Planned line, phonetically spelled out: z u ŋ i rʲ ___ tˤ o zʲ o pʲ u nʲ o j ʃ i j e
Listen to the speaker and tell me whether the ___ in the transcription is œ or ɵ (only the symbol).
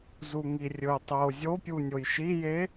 ɵ